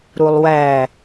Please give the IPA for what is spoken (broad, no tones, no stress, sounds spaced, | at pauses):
ɾ u lˠ w æ